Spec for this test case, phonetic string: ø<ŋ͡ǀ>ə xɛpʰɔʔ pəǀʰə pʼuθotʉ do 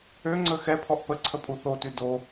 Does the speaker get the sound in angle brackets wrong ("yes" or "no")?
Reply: no